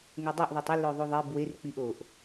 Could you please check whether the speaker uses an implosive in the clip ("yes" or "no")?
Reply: no